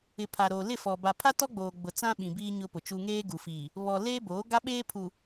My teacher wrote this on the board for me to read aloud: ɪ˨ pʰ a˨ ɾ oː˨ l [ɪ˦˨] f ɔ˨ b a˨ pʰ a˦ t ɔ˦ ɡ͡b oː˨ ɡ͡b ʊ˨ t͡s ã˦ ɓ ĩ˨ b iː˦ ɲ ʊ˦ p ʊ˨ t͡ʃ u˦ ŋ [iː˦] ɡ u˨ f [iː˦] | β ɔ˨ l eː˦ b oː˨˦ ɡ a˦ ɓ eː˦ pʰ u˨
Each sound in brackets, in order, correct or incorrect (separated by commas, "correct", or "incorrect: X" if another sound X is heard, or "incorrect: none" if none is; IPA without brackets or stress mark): correct, incorrect: eː˦, incorrect: iː˨